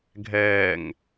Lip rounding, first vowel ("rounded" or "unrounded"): unrounded